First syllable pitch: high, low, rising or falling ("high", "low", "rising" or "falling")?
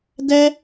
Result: high